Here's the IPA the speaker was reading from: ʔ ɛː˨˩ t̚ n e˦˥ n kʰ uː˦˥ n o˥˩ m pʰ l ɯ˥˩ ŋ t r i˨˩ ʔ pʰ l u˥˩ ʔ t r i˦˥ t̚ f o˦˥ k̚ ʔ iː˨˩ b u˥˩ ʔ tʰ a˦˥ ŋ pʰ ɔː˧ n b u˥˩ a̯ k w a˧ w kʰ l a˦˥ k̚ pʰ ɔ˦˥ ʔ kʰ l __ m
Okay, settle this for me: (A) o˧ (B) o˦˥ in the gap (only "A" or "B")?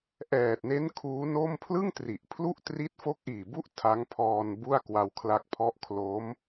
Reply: B